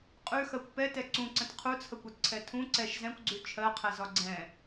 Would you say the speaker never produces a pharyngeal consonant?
yes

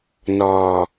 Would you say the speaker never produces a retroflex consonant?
yes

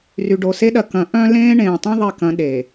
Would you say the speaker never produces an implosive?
no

